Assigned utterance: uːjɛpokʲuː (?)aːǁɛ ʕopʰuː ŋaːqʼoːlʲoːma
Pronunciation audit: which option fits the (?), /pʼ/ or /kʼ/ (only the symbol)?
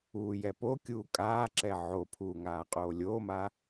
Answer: kʼ